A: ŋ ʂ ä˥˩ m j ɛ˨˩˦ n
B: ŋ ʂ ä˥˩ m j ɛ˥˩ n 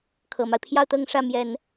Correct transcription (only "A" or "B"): A